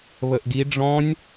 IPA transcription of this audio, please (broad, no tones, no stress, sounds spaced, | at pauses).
β ə ʔ ɡ i ɖ͡ʐ ɔ̃ nʲ